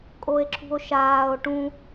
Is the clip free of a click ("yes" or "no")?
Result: no